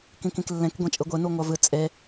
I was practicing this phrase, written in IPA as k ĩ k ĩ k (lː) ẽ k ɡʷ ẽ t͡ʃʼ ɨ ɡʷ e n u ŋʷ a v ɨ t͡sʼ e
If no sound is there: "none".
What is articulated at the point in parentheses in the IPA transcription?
lː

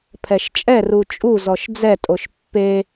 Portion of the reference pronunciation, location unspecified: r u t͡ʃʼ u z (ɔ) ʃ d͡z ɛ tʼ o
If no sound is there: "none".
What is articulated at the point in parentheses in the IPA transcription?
ɔ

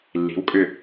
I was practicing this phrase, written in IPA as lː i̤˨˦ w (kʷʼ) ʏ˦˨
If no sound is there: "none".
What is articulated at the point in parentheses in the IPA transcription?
kʼ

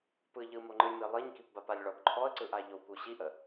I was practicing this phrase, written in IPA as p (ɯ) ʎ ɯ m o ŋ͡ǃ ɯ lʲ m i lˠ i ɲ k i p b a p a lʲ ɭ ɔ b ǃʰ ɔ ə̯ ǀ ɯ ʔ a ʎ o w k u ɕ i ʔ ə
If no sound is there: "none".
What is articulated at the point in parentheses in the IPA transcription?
ɯ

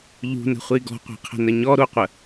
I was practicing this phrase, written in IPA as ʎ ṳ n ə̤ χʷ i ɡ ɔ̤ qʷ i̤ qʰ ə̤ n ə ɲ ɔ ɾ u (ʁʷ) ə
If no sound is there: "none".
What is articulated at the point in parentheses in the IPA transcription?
qʷ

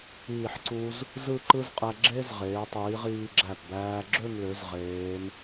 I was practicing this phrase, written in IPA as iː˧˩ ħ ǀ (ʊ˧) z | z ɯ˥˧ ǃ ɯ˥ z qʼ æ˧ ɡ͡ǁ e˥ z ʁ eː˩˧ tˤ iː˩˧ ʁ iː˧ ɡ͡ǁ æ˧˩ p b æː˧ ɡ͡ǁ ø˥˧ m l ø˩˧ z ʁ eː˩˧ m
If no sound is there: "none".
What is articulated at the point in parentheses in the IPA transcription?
u˧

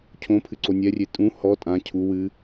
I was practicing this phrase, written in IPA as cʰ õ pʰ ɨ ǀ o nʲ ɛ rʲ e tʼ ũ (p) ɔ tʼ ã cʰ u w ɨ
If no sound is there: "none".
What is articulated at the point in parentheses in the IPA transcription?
h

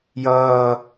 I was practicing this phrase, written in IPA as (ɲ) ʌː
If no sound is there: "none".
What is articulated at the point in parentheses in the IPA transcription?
j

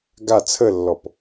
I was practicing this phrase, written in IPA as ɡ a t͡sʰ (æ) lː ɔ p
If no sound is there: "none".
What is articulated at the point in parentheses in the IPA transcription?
ə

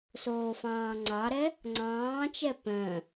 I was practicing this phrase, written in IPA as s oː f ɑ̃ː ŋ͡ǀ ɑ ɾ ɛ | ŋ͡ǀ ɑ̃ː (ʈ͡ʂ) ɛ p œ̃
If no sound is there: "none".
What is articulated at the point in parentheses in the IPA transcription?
t͡ʃ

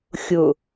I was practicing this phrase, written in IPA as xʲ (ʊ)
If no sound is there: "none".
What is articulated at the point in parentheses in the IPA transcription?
ʊ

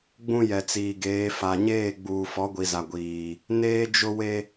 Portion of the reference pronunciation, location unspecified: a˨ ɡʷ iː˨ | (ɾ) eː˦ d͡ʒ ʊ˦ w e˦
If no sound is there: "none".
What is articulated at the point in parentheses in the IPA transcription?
n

